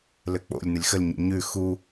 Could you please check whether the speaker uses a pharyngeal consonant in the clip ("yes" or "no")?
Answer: no